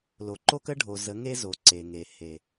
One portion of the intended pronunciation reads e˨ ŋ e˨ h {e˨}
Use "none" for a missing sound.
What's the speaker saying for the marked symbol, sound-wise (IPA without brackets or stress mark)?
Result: e˨